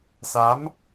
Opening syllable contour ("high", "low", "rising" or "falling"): rising